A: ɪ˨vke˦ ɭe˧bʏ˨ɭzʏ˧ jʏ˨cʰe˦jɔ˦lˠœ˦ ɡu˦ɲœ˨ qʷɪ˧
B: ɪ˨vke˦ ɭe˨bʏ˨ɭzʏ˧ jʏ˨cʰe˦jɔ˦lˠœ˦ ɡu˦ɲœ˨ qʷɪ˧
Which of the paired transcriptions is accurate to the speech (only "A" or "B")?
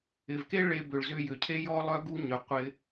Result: A